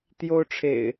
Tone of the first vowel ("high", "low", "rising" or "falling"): high